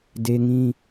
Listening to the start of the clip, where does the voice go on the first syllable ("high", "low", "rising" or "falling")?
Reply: high